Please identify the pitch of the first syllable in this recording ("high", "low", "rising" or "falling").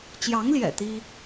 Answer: rising